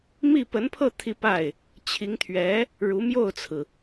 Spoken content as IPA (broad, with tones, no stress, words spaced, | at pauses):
mi˥˩pə˧˥npʰɤ˥˧ t̪ʰi˥˧pa˥˩ɪ̯ | t͡ɕʰi˧˥ŋt̪ʰɥɛ˧˥ | ɻu˧˥mjo˥˩ʊ̯t͡sʰɹ̩˩